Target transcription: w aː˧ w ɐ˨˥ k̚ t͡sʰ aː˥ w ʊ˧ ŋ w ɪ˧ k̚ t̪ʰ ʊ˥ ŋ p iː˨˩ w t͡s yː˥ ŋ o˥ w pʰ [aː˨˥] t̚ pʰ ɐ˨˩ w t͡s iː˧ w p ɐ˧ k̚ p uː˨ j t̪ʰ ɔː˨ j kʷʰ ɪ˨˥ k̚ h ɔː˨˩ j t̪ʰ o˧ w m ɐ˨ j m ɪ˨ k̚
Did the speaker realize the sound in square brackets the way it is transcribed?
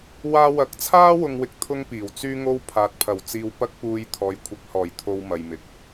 no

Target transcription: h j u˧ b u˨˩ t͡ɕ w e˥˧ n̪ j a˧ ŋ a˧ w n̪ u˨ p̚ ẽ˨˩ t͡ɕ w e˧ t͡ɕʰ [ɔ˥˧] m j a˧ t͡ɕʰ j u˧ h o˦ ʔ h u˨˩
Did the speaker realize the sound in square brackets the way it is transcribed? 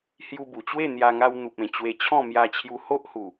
no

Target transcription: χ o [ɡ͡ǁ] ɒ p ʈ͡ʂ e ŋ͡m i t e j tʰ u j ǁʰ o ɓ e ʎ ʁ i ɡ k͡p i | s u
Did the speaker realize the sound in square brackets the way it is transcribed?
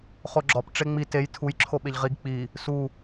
yes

